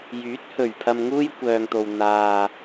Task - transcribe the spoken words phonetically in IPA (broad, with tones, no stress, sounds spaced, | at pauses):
j yː˨˥ t̚ h ɵ˨˩ ɥ pʰ ɐ˧ m ŋ uː˥ j kʷ œː˨ ŋ t̪ o˨ w n̪ aː˨